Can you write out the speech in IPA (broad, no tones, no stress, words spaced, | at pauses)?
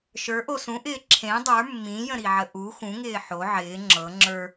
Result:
ʃə˞ʔo sũʔɪː ǁʰẽ dˤə˞ mːĩjə̃ɾiʕə ʔu xũŋɪː ħo ʕɪː ŋ͡ǁɤ ŋ͡ǁə˞